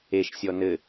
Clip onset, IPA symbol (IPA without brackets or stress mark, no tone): e